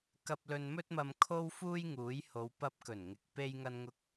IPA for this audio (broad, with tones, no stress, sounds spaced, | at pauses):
k ɐ˧ p̚ l ɵ˧ n m ɵ˥ t̚ m ɐ˧ m kʰ o˥ w f uː˥ j ŋ uː˨˥ j h o˨˧ w p ɐ˧ p̚ k ɵ˨˩ n ŋ ɪ˨˥ k̚ p e˥ j ŋ ɐ˥ n ŋ ʊ˥ k̚